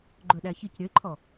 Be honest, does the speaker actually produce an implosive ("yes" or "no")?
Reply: yes